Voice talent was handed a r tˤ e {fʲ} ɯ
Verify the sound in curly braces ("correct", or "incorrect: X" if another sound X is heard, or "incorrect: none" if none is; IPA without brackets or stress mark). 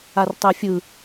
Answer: correct